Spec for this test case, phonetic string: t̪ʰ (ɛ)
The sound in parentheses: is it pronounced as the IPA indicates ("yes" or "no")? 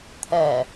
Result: yes